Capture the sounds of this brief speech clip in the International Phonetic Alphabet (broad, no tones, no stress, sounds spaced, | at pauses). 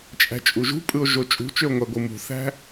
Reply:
t͡ʃʼ æ̤ t͡ʃʼ u ʒ ṳ pʼ ɯ o̯ ʒ o t͡ʃʼ ṳ t͡ʃ ø o̯ ŋʷ æ ɡʷ ɯ m ṳ θ æ̤